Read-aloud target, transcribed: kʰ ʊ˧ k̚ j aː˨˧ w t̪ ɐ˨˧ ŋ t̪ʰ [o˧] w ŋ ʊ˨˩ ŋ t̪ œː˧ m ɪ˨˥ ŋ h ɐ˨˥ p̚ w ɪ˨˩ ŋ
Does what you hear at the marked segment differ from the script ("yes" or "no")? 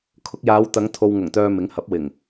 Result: no